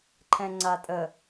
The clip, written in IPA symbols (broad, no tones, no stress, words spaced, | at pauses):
ǃʰɛ̃ŋ͡ǀatʼə